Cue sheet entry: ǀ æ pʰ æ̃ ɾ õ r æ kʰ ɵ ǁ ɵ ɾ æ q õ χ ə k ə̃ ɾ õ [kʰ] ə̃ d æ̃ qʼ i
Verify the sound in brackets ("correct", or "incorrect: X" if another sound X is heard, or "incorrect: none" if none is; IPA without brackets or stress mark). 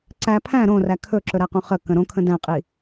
correct